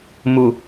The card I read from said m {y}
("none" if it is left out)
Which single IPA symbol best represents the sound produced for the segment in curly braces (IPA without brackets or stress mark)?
u